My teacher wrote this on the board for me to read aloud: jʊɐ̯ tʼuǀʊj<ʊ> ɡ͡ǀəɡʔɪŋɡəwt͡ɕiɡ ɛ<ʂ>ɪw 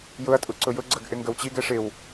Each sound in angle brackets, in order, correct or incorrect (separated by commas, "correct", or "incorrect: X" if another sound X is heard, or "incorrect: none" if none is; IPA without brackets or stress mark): correct, correct